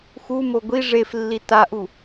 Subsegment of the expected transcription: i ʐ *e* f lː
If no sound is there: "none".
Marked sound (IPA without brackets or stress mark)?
e